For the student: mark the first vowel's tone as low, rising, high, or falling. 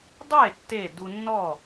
falling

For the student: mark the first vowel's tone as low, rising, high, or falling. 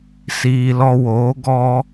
low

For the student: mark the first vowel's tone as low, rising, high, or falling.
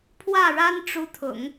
falling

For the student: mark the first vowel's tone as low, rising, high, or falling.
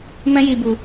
high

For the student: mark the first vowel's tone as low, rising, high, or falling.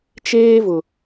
high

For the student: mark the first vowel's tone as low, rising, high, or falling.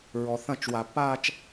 low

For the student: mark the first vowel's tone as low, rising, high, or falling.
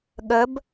rising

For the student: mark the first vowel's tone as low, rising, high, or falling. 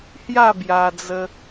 falling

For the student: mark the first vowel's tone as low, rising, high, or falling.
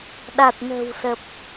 low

